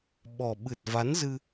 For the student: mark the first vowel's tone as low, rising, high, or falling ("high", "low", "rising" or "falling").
low